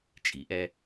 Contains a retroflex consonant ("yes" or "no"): no